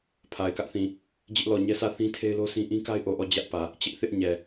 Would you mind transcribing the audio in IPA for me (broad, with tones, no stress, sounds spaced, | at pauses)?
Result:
pʰ a˨ ɪ̯ k ä˦ ʔ θ ĩ˨ | d͡ʑ ɪ˦ ʔ l ɔ˨ ɲ ɛ˦ sʰ ä˦˨ θ ĩ˦ tʰ e˦ ɪ̯ l o˦ sʰ ĩ˦ ʔ ĩ˦ k a˦ ɪ̯ ʔ o˨ ʔ ɔ˦˨ d͡ʑ ä˦ ʔ p ä˨ | t͡ɕ ɪ˦ ʔ θ ɪ˦ ʔ ɲ ɛ˨